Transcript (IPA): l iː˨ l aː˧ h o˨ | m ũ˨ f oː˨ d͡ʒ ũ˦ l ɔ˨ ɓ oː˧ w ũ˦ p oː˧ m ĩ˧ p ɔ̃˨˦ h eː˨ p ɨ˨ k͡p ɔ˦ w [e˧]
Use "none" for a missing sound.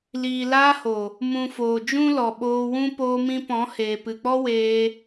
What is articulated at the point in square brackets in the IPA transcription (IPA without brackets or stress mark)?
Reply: eː˧